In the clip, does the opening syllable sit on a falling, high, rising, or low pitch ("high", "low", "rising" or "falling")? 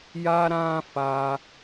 high